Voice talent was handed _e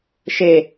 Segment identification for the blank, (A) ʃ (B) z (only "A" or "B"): A